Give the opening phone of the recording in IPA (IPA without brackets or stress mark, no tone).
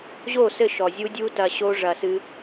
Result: ʑ